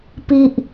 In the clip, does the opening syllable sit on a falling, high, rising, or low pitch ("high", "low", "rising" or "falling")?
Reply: high